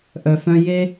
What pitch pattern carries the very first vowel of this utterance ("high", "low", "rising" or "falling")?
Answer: low